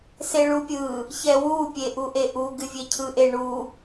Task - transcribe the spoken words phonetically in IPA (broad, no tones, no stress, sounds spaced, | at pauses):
s e ɭ u pʲ ɯ | ç ɛ w u pʲ e ʔ u ʔ e ʔ u ɡ ɨ vʲ e cʰ ɯ ʔ e ɳ u